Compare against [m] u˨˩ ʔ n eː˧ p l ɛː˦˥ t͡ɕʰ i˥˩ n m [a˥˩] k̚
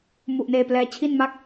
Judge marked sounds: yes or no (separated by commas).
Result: yes, yes